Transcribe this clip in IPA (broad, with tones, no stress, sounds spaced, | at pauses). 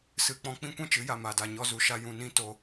s ɨ˧ k͡p ɔ̃˦ k͡p ĩ˦ kʷ ɛ̃˦ t͡ʃ ɨ˨˦ j a˧ m a˧ d a˧ ɲ ɔ˦ z u˨ ʃ a˧ j ũ˧ n ĩ˦ t o˧